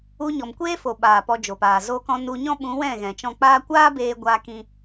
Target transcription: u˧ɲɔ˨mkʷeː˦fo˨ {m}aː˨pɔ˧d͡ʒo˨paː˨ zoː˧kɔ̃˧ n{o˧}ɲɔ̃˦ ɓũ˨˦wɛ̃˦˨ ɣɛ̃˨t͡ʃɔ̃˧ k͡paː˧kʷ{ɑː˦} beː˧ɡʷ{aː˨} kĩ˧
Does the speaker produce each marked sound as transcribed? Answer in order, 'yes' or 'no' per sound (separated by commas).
no, no, no, no